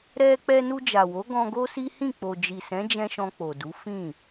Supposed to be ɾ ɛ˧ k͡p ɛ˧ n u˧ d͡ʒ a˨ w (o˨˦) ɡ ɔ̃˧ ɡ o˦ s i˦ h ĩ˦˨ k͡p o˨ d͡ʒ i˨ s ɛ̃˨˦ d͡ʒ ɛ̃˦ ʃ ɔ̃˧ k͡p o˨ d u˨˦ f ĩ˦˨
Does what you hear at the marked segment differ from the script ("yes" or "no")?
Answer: no